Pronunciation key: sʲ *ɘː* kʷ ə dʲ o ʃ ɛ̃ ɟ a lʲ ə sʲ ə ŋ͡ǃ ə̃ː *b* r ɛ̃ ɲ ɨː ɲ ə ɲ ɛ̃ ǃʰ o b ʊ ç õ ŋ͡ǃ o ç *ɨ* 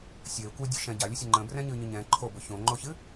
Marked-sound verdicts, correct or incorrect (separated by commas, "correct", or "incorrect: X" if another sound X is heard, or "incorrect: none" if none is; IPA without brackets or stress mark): correct, correct, correct